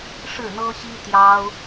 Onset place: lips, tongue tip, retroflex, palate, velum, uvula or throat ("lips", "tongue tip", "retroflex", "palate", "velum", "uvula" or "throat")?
retroflex